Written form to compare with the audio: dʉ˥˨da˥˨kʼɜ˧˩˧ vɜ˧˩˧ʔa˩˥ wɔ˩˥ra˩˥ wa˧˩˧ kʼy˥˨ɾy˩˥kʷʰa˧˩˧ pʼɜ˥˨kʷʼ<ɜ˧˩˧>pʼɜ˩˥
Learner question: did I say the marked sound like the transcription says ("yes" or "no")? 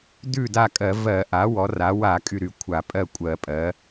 yes